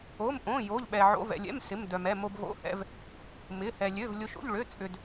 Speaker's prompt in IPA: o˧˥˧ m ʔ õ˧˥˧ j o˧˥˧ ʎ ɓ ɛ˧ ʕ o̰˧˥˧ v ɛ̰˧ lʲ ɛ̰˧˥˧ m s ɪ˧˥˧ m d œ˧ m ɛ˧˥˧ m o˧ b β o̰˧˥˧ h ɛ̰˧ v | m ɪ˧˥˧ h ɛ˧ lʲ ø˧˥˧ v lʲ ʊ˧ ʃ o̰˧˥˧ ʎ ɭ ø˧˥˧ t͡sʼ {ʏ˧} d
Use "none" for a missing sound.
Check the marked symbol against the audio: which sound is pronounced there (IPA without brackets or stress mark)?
ʏ˧